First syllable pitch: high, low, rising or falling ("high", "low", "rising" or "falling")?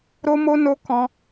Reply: high